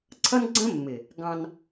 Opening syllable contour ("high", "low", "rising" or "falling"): high